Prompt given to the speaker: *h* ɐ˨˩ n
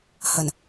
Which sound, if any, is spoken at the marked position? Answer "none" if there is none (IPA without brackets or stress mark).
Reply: h